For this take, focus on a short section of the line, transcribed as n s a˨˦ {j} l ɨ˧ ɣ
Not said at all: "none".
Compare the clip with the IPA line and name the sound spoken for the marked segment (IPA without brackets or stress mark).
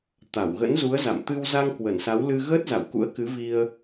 w